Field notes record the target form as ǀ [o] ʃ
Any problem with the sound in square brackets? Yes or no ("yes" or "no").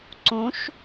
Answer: yes